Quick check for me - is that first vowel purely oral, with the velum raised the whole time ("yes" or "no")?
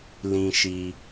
no